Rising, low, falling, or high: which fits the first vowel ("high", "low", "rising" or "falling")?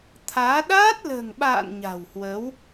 rising